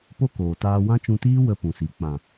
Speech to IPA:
p o˦ k oː˨ t aː˧ w ã˦ t͡ʃ ũ˧ t iː˦ w ə˧ p ũ˨ s i˨ k͡p ã˨

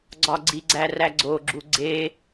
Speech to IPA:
ɡ͡ǀ ɒ ɡ͡ǀ i ɡ͡ǀ æ r æ ɡ͡ǀ o ɡ͡ǁ u ɡ͡ǀ e

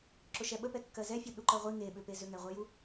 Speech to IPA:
ǁ ʊ ʃ ɛ ɓ ə p ɛ kː ɜ z ɛ fʲ u ɗ u ǃ ɜ ʁʷ i ŋ e ɓ ʏ p e z ʏ ŋ ɛ ʁʷ ɜ j u

